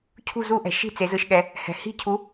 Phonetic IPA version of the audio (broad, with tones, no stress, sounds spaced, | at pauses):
cʰ ṳ˥˨ z u˦˥ ʔ ɛ̤˩ ʃ i̤˥˨ t͡s e˩˧ z ɯ˥˨ ʃ ɠ ɛ˩˧ | h ɛ̤˩ h i̤˥˨ cʰ u˨˥